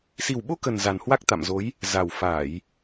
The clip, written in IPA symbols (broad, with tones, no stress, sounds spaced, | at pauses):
s i˨˩ w ɓ o˧ k ə˨˩ n z a˨˩ n h w a˦˥ k̚ t̪ a̰˧˨ m z o˨˦ j | z a˨˩ w f aː˧˩˨ j